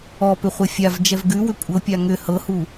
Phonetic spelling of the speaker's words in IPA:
ɔpʏ χʷəfʲav d͡ʒɛvɡʉwʏ kʷʼɤpʲa ŋʏ hɤhu

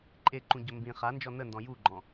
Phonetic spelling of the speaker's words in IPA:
ǃʼeǃũɟɵ mbĩ χand͡ʒɔ nəndɔ̃ juɡ͡ǃɔ̃

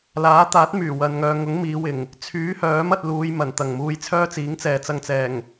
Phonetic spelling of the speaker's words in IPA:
laː˨˥t̪aː˨˥t̚ myː˨˩wɐ˨nŋœː˨ŋʊ˨˥ŋ miː˨˧wɪ˨˩ŋ | t͡sʰyː˨˥hœː˨˥m ɐ˧t̚luː˨˧j mɐ˨˩n t̪ɐ˨˩ŋmuː˧jt͡sʰœː˥ t͡siː˨˥ŋt͡sɛː˨t͡sɐ˧ŋ t͡sɛː˨˩ŋ

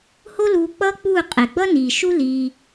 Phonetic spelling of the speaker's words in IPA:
ho˦luː˧ k͡pʌː˦k͡puː˦˨ qʼe˨ɡ͡bʌ˦niː˨ʃu˦ liː˧

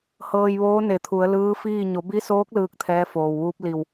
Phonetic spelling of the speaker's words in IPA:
hɤː˧jʋoː˧˥ ne˧˩t̪ʰu˩˧ə̯ lɯː˧˥fiː˥˨ ɲo˩˧bi˧˥soː˧˥k̚ lɯː˥˨k̚t̪ʰɛː˧˥foː˩wʋuː˧˥p̚ li˧˩w

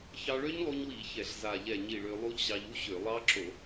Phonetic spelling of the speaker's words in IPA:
çɑ˧ɭø˦˥ɲlˠu˧ɲwi˧˩˧ çɛ˧˩˧ɬza˧˩ʎɛ˧˩ ɲi˧˩ɭø˧ lˠu˦˥ʎɕɑ˧ʎu˦˥ɕø˧˩˧ lˠɑ˦˥ǁo˧˩˧

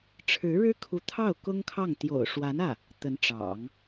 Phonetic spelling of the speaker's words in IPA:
ʈ͡ʂʰɻ̩˧˥ɻɻ̩˥kʰu˧˥t̪ʰɑ˥˩ʊ̯ kʊ˥ŋkʰɑ˥˩ŋ t̪jo̰˨˩ʊ̯ʂwa˧˥nä˥˩ | t̪ə˧˥nʈ͡ʂɑ̰˨˩˦ŋ

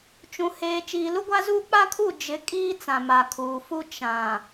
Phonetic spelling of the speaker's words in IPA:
t͡ʃũ˨heː˨ t͡ʃiː˨lu˦ɡʷa˦zuː˦ k͡pa˦kʰu˦˨ d͡ʒɪ˨˦ kʼiː˦t͡sã˨ ma˨kʰuː˨fu˦ t͡ʃã˨

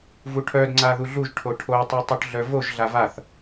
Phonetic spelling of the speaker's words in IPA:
vuʈʰœd ŋ͡ǀaðuɮuʒ ʈʰoʈʰo tˤutˤuʈɮœvoʒ ɮavaθ

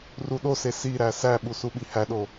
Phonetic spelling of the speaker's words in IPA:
ruɗose siɾæ sæɓu suɓihæɗo

